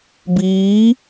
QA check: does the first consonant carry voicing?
yes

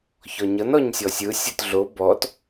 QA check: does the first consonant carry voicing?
no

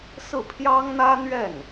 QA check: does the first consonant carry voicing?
no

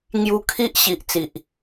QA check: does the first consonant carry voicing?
yes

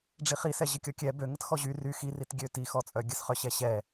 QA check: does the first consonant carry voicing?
yes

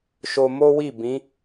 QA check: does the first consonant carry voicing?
no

